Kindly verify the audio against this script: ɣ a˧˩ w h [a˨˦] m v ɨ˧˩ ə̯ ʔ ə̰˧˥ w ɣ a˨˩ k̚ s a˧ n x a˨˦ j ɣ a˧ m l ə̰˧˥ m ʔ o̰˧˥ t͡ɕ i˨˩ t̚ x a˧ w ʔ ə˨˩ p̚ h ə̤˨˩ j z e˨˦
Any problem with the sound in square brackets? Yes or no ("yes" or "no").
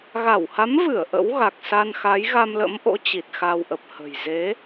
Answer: no